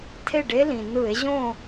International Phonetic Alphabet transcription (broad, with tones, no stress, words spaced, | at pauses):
tʰe˥˨ɖe˦˥lĩ˩ nɯ˧˩˧e̯ʑõ˥˨